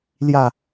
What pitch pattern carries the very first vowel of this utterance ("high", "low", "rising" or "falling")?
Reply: falling